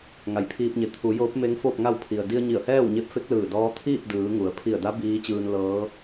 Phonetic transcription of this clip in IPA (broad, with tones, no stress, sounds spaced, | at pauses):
ŋ a˩˧ j pʰ iː˧ p̚ ɲ e˩˧ t̪ʰ u˩˧ j oː˧˥ p̚ m e˧˥ ŋ f oː˥˨ p̚ ŋ a˥˨ w pʰ i˩ ə̯ d i˧ ə̯ ɲ i˧˩ ə̯ h ɛː˥˨ w ɲ e˧ p̚ f e˧˥ k̚ l ɯː˧˩ d ɔː˧˥ t̪ʰ iː˥˨ p̚ d ɯː˩˧ ŋ u˩˧ ə̯ pʰ i˧˩ ə̯ d a˧˥ b iː˧˥ t͡ɕ ɯː˧ n l ɤː˧˥